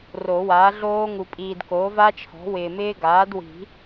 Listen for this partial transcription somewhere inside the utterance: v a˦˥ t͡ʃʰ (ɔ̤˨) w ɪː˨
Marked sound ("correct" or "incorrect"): incorrect